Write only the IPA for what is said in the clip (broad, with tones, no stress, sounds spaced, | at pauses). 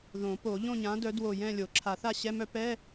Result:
ð õ˨˩˦ p o˨˩˦ ʎ õ˥˧ ɲ ã˨˥ d œ˨˥ d w o˧˩ j ɛ̃˥˧ lʲ o˨˩˦ ǁʰ a˨˩˦ θ a˥˧ ɕ ɛ˧˥˧ m œ˦˥ p ɛ˧˥˧